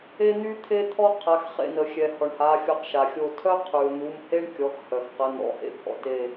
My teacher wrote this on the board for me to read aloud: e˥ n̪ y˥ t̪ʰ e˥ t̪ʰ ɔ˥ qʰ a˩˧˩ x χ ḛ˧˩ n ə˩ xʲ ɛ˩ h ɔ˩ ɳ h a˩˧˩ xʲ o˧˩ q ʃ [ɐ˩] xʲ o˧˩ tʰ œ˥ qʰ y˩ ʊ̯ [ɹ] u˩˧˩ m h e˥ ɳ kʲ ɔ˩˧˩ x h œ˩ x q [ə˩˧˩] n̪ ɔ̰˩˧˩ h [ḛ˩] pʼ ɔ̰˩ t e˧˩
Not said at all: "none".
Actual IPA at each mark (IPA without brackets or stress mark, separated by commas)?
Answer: a˩, n̪, ə˩˧˩, ḛ˥